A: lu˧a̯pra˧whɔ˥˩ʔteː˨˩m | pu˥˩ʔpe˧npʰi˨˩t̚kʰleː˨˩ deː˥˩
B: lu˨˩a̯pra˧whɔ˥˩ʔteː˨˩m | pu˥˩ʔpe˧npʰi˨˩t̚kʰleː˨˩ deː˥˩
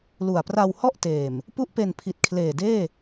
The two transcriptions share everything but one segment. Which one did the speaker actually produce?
B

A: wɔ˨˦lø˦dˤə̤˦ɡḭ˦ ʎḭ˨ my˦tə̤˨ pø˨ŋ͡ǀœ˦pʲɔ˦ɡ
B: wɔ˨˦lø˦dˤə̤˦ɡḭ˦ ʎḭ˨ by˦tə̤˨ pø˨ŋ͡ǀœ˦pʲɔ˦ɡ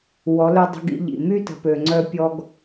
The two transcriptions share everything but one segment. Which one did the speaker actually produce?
A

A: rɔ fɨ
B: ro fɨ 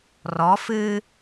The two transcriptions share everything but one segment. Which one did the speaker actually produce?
A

